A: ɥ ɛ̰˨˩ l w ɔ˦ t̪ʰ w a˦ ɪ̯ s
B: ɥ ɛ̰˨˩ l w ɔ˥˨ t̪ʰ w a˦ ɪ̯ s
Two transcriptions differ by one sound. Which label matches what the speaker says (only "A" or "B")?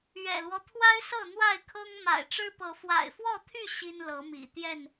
A